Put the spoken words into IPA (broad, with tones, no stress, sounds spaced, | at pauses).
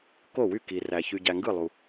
k o˥˩ w y˥˩ k i˨ r æ˨ ç y˨ ɟ æ˨ ŋ ɡ ɯ˥˩ lˠ u˨